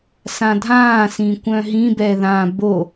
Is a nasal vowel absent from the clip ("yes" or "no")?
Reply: no